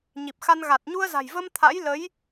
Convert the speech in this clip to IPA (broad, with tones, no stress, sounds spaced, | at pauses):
ɲ i˨˩ p̚ x a˧ n ɣ a˨˩ t̚ ɲ u˧ ə̯ z a̤˨˩ j v ə˧ m t̪ʰ a̰˧˥ j l ə˨˦ j